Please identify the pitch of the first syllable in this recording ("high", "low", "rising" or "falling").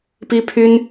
high